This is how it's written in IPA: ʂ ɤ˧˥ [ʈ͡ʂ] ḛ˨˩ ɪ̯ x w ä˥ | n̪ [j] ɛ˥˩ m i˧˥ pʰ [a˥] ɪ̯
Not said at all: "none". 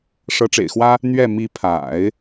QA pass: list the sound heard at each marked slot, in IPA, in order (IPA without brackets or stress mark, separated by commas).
ʈ͡ʂ, ɥ, a̰˨˩˦